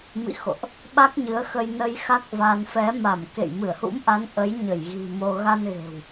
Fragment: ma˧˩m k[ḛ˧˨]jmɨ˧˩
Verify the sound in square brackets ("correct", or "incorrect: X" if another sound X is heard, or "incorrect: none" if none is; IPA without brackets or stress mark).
correct